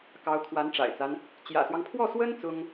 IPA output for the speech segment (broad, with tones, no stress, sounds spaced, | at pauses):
k ɑ˧˥ ʊ̯ kʰ w a˧˥ n ʈ͡ʂ a̰˨˩ ɪ̯ t͡s a˦ n | t͡ɕ j ä̰˨˩ s w ɑ˦ ŋ pʰ w ɔ˥˩ s w ə˥ n t͡s ʊ˥ ŋ